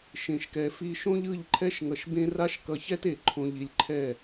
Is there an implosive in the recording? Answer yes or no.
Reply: no